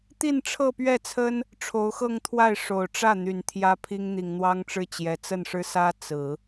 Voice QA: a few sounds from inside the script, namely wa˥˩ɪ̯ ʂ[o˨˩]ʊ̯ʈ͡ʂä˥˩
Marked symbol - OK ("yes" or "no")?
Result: yes